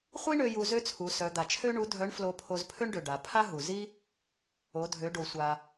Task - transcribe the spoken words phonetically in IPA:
χʷ i˥ ɳ ø˧ j u˧ z ø˥ t͡sʰ u˩˧ s œ˩˧ d̪ a˩ t͡ʃʰ ø˥ ɳ u˧˥ dʱ œ˧˥ ɳ f l o˧ pʰ o˧ z pʰ ø˥ ɳ ɖ ø˩ ɖ a˩˧ pʰ a˥ ɦ u˩ z i˥ | o˩˧ dʱ ø˩˧ ɖ o˩ sʷ a˩

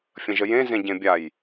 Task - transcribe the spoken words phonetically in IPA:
fʲ ə̃ ʒ ə j ẽ z ẽ ɟ ẽ bʲ a j

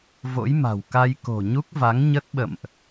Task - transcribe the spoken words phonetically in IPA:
v o̰˧˥ j m a̤˨˩ w k a˧ j k o̤˨˩ ɲ u˦˥ k̚ v a˨˦ ŋ ɲ ə˦˥ t̚ ɓ ə̰˧˨ m ʔ

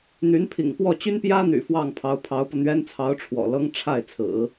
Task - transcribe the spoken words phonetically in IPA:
n̪ y˧˥ n pʰ ḭ˨˩ ŋ p w ɔ˥˩ t͡ɕ y˥ n p j ä˥ n̪ y̰˨˩ f w ɑ˥˩ ŋ pʰ ɑ˧˥ ʊ̯ pʰ ɑ˧˥ ʊ̯ p ɤ˧ n̪ ɥ ɛ˥ n t͡sʰ ɑ˧˥ ʊ̯ ʈ͡ʂʰ w ɔ̰˨˩ l ɤ˥ ŋ ʈ͡ʂʰ a˥˩ ɪ̯ t͡sʰ ɹ̩˨˩˦

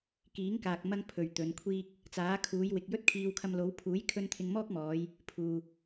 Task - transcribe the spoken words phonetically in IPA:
k iː˨˥ ŋ k aː˨ k̚ m ɐ˧ ŋ pʰ ɵ˨ ɥ t̪ ɵ˨˧ n kʷʰ iː˥ k̚ | t͡s aː˨˥ kʰ uː˨˧ j w ɪ˨ k̚ j ɵ˥ t̚ kʰ iː˧ w kʰ ɐ˧ m l o˨˧ w pʰ uː˨˥ j kʰ ɵ˧ n t̪ʰ ɪ˧ ŋ m ɔː˥ k̚ m ɔː˨˧ j | pʰ uː˨

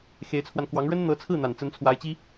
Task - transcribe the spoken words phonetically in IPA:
x e˧˥ ɪ̯ t͡sʰ w a˧ n k w ɑ˧˥ ŋ ɻ ə˥ n n̪ ɤ˧˥ t͡sʰ ɹ̩˥˩ n̪ a˨˩ n t͡s ə˧˥ n t͡sʰ w a˧˥ ɪ̯ t͡ɕ i˥

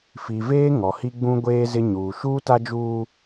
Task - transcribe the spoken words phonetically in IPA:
f i˨ v eː˦ ŋ ɔ˨ h i˦ ɡ͡b ũ˦ ɡʷ eː˦ z ɪ˦ ɲ uː˨ ʃ uː˦ t a˦ d͡ʒ uː˦

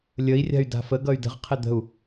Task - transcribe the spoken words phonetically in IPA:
lʲ ə i̯ rʲ a̤ y̯ d a̤ f ə ɡ ʌ y̯ d ə̤ ʁ qʰ ɪ d̪ ə̤ u̯

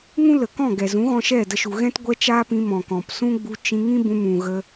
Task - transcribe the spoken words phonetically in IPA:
ŋ ũ˦ l ə˨ k ɔ̃˦˨ ɡ ɛ˨ z ũ˨˦ ɣ ɔ̃˧ ʃ ɛ˦˨ d ə˧ ʃ u˨ ɣ ɛ̃˦ t ɡʷ ɛ˦ t͡ʃ aː˦ p ĩ˧ m ɔ̃˨ k ɔ̃˨ p s ũ˦ ɡ͡b u˧ t͡ʃ ĩ˧ ŋ ĩ˦ b ũ˧ m ũ˨ ɣ ə˧

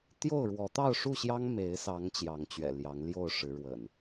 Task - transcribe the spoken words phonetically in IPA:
t̪ j o˥˨ ʊ̯ ɻ w ɔ˨˦ t̪ ɑ˥˨ ʊ̯ ʂ u˥˨ ɕ j ɑ˦ ŋ m e˨˦ ɪ̯ s ɑ˨˦ ŋ t͡ɕ j ɑ˨˦ ŋ t͡ɕ ɥ ɛ̰˨˩ l j ɑ˨˦ ŋ l j o˥˨ ʊ̯ ʂ ɻ̩˨˦ ɻ w ə̰˨˩ n

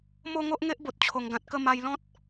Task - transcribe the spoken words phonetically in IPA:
m o˥˧ ŋ o˦ ʔ ŋ e˦ ʔ b o˨ t̚ t͡ɕʰ o˨˩ ŋ ɡ ã˨ t̚ k ə˥˧ m a˧ j l ɔ̃˦ t̚

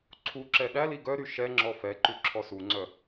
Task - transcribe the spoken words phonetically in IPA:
ǀʰ u ǁ ɛ ɗ æ l i ɡ œ ɾ y ʃ ɛ ŋ͡ǁ ɔ f ɛ ǃ ʉ ǁʰ ɔ s u ŋ͡ǀ œ

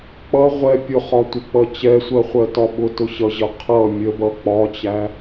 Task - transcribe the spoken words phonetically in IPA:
k͡p ʌ ʁʷ ɛ pʲ ʊ χ ɒ tʷ ə k͡p ʌ t͡ɕ ɛ sʷ ɜ χʷ ɜ t ɒ ɓ ʊ t ʊ ɕ ʌ ʑ ʌ qʰ ʌ mʲ ə b ʌ k͡p ɒ t͡ɕ æ

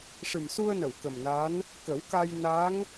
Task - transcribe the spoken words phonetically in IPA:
ʂ ɨ˨˩ m s u˧ ə̯ n ə˨˩˨ w k ə˨˩ m n a˧˥ n | k ə˨˩˦ w k a˧ j n a˧˥ ŋ

